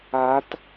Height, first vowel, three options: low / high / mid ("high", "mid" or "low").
low